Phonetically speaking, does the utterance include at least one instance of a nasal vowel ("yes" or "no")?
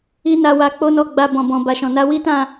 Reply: yes